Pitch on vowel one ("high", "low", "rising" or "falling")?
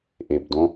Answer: low